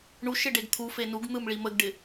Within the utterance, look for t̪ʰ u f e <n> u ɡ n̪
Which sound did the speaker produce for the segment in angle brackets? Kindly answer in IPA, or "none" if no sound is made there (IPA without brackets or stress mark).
n